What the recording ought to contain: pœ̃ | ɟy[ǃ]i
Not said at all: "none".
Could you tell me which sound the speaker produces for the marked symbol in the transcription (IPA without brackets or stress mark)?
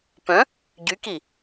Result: k